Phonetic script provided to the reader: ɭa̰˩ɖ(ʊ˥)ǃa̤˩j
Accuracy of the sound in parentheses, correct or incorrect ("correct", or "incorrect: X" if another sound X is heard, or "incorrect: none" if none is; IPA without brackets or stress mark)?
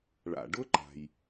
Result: correct